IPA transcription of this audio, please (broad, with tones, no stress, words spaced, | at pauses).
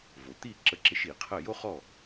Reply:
vo˩t̪i˥˩ǁə˧ǁɪ˧ʃ i˩qʰə˥˩ jo˥χɔ˥˩